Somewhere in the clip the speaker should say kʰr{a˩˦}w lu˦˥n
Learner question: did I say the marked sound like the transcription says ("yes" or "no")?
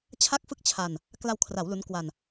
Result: yes